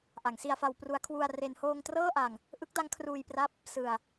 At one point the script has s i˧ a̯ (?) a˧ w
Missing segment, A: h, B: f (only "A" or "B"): B